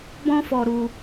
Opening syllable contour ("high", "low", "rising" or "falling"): high